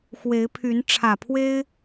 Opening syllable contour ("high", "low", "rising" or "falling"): rising